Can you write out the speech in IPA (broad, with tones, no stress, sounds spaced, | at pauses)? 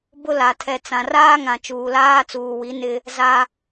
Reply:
b ʊ˦ l a˨ tʰ ɛ˨ t͡s ã˨ r aː˦ ŋ ã˨ t͡ʃ uː˨ l aː˦ t͡s uː˨ w i˨˦ n ɪ˦ | z a˦